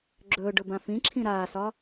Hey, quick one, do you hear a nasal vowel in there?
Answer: yes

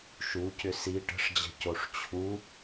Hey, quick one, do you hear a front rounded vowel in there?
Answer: yes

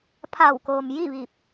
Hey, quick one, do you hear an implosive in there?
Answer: no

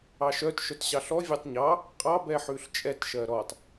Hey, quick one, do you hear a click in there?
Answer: no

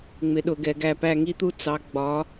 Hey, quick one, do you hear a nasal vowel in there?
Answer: no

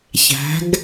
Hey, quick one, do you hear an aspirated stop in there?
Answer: no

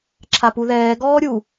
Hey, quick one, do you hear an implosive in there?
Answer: no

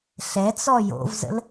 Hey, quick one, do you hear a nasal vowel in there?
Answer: no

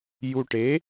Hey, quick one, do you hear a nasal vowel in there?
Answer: no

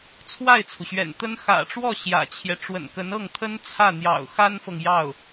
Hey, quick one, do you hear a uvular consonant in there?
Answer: no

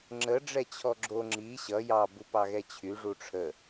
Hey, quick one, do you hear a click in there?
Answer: yes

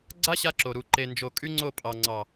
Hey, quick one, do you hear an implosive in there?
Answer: no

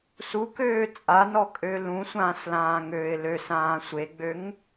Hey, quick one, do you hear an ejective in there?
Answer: yes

